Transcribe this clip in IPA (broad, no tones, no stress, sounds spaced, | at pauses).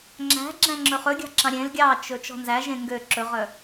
ŋ͡ǁ æ̤ ɡ͡ǁ æ̃ ŋ͡ǁ ɵ χ ɵ ɡʲ ɑ̤ ǁ ɑ̃ ɾʲ ẽ l ɡʲ ɑ t͡ʃ ɵ t͡ʃ ɔ̤ n z æ ʒ ẽ ŋ ɡ ø ǁ ɵ ʁ œ